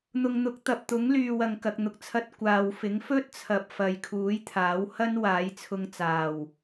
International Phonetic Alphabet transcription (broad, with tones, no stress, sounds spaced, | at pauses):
n̪ ʊ˨ ŋ n̪ ʊ˨˥ k̚ t̪ ɐ˨ p̚ t̪ ʊ˨˥ ŋ l yː˨ w ɐ˨ ŋ k ɐ˨ k̚ n̪ ʊ˨ k̚ t͡sʰ ɐ˧ t̚ kʷ aː˨ w f ɪ˨˥ ŋ f ɵ˥ t̚ t͡sʰ ɐ˨ p̚ f ɐ˨ j kʰ uː˨˥ j t̪ʰ aː˨˥ w h ɐ˥ n w aː˨˥ j t͡sʰ ʊ˧ ŋ t͡s aː˨˩ w